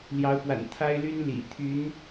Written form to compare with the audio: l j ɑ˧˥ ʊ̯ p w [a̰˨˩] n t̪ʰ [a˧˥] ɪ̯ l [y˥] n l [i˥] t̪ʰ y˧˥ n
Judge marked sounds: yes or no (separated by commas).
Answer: yes, no, yes, no